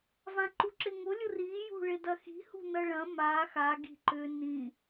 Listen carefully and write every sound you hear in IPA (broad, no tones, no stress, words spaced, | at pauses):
vãǃuǁɪŋʊ lʲʊri jṳɭɪdɐxi̤ hṳnɐɭɐ̃ ma xa ɡi̤ǃʏ nĩ